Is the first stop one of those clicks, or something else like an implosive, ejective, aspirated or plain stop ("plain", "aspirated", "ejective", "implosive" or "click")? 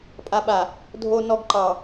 ejective